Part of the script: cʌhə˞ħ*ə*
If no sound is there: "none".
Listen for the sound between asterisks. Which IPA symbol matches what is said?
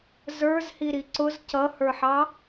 ɑ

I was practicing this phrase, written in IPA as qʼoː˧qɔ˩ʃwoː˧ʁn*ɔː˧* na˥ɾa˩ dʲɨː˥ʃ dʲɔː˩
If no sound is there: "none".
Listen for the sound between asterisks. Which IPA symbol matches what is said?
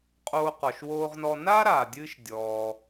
ɔ˧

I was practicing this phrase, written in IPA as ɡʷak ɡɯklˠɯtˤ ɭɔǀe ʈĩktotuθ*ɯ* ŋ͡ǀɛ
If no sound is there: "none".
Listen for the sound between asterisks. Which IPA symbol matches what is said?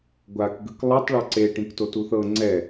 ɤ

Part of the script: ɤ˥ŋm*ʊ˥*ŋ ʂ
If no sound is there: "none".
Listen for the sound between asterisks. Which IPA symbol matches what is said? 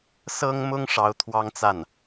ʊ˥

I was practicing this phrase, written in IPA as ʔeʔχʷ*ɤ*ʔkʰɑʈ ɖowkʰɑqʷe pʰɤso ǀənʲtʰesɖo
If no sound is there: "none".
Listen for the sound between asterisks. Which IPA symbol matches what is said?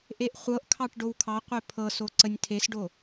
ɤ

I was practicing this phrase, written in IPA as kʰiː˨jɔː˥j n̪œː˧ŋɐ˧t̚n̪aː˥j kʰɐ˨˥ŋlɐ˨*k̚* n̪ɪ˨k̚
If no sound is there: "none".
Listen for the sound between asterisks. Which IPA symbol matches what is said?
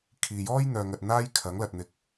t̚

